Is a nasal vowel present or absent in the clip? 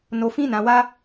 present